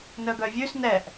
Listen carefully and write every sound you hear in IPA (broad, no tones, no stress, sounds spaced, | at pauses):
n œ ɡ œ vʲ ʉ s n ɛ ʔ